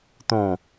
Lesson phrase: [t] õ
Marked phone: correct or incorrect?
correct